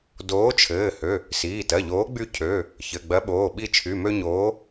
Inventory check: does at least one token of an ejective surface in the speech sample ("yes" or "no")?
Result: no